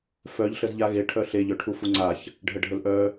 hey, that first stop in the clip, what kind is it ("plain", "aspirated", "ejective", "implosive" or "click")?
aspirated